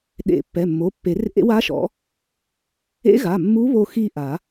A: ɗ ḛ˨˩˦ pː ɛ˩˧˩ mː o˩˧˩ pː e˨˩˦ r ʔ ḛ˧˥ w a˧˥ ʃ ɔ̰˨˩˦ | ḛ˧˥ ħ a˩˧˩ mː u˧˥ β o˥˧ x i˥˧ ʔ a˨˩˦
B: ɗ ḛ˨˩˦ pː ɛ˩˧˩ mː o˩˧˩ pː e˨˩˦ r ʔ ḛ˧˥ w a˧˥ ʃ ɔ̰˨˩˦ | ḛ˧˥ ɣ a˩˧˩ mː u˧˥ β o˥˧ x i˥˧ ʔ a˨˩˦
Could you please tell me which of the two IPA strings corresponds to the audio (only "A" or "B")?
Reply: B